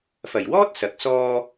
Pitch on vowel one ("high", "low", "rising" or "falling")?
low